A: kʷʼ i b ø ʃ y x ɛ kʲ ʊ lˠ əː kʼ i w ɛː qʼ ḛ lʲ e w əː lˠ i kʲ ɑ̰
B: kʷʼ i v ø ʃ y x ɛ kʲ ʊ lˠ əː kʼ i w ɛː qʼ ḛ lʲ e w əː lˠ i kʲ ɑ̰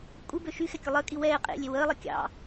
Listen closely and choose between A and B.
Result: A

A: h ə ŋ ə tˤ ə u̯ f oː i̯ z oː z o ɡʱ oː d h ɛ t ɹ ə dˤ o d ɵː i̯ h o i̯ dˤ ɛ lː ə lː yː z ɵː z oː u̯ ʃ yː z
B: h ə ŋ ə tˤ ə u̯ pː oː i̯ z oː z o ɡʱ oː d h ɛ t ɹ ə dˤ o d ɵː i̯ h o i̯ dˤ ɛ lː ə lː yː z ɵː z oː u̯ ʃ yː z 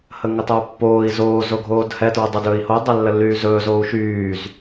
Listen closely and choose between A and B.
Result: B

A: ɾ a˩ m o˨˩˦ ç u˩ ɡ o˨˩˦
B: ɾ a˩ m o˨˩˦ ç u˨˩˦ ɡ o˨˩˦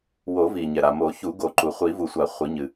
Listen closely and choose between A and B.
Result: B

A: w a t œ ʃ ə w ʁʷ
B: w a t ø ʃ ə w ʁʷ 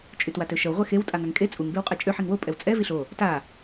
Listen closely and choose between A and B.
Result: B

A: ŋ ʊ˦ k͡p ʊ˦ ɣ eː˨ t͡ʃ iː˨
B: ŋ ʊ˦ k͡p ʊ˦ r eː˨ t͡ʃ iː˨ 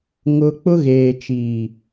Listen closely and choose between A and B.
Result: A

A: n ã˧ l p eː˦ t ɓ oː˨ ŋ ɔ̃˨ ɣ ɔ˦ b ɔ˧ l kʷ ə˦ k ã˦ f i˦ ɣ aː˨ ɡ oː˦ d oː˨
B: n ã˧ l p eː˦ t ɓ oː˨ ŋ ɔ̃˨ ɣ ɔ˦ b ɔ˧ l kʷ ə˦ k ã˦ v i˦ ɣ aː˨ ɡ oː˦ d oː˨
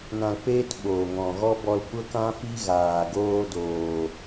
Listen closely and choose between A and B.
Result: A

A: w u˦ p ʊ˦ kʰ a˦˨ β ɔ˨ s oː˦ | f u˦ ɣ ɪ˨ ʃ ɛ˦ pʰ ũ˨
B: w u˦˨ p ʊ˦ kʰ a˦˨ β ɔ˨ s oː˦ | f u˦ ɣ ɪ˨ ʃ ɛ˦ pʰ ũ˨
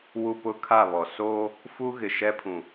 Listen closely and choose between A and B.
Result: A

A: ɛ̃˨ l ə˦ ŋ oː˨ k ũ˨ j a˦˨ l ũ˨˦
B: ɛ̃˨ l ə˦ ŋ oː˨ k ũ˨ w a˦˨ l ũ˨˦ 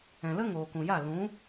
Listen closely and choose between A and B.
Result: A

